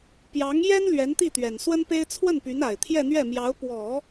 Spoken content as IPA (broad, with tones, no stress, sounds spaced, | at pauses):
p j ɑ˧˥ ŋ j ɛ˥ n l ɥ ɛ˧˥ n t̪ i˥˩ t̪ ɥ ɛ˨˩ n s w ə˥ n p e˥ ɪ̯ t͡sʰ w ə˥˩ n p y˧˥ n a˨˩ ɪ̯ t̪ʰ j ɛ˥˧ n̪ ɥ ɛ˥˩ m j ɑ˧˥ ʊ̯ p w ɔ˨˩˦